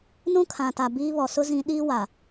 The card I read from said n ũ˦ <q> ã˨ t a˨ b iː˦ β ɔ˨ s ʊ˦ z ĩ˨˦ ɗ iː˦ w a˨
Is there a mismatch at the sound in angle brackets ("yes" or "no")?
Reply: yes